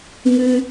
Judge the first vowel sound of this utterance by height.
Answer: high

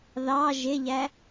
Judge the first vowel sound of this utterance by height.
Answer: low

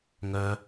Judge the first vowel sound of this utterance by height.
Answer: mid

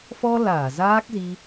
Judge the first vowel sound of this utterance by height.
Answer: mid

